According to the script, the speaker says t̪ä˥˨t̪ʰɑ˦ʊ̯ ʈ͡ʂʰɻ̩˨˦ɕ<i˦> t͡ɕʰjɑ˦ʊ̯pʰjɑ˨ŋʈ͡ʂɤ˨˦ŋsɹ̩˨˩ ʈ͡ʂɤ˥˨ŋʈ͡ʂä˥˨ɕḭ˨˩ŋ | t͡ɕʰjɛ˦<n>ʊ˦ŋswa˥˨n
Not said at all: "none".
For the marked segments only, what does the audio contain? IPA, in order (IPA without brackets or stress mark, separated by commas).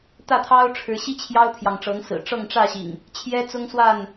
i˦, t͡s